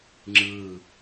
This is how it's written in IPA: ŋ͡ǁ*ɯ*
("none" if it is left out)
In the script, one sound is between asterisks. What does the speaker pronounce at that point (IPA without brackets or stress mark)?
ɯ